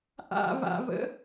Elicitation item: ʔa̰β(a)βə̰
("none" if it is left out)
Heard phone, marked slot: a̰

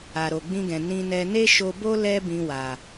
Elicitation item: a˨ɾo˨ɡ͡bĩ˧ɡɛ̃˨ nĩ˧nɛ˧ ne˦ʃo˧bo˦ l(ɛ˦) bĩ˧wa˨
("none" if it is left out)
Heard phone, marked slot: ɛ˦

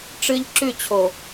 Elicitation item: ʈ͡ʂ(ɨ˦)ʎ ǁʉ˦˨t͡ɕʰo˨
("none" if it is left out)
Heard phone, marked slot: ɨ˦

